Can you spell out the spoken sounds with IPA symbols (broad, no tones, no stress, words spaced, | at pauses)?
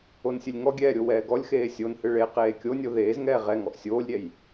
onsʲɨlʲŋɔɡʲɛː ɾʲowɛːɡɔlʲxeː sʲonhɨ ɭe qeːkʲonʲo ðeːzŋɛː ʁɛŋɔʔ sʲoːlʲɾʲɛj